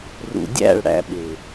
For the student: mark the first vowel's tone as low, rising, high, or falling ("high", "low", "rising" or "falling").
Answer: low